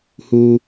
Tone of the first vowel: low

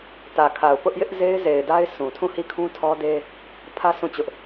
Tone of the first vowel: low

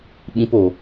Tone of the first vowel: high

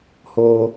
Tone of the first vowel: high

